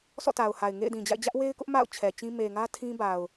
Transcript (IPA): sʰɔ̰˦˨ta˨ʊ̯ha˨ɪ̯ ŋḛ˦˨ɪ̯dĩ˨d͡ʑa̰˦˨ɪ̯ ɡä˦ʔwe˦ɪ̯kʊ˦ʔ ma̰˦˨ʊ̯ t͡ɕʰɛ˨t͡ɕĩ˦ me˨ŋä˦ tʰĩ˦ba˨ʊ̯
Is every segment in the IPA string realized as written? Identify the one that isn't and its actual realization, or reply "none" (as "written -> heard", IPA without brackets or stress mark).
ɡ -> d͡ʑ